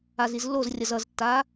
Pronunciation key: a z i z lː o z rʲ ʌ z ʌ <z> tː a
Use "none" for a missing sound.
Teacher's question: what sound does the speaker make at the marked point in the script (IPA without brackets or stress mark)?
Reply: z